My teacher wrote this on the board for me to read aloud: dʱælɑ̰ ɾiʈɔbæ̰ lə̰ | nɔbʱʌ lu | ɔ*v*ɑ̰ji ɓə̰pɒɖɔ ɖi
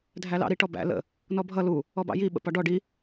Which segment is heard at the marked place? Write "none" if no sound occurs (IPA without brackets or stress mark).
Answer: b